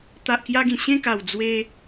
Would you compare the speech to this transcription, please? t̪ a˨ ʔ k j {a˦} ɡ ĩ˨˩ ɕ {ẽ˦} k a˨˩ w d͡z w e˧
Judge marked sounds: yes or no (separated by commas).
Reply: no, no